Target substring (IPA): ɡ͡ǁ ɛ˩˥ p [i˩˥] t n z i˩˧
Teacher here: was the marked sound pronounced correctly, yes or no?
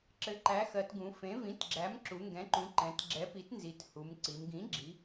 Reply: yes